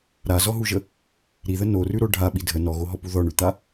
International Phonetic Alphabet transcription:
ɾazɔɦuʒə | ɾiðə norʉɾo ɖʱaɓi dʱə nɔɣoɦɔpu ðɔɳʉt̪a

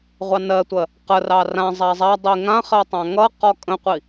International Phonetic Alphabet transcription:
ʁʷɑnɜtʷɜ | qərɑ rã zˤazˤadˤi ŋãχɜ tˤãŋʌqɔ kʼə̃qʷi

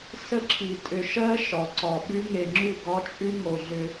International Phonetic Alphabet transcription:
sə˦ǁʰi˨ tʼʏ˨ʃɜ˦ ʃɒ˨ǀɒ˨ɓʉ˦ ŋe˨ŋ͡ǁʉ˦˨ ɡɒ˦t͡ʃʼʉ˦ ŋo˨ɮʏ˦

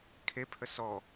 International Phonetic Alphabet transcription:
kʰepʰə sɔ

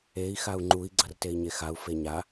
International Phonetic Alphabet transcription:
ei̯ xau̯ŋ͡ǃui̯ ɡ͡ǀʌrtei̯ɲexau̯ feɲa

